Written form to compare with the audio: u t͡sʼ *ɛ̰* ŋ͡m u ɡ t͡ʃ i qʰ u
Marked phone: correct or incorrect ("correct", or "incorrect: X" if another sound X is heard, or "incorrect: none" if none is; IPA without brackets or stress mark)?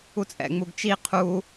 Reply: correct